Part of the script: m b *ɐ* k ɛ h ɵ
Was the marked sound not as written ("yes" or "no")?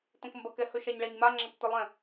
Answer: no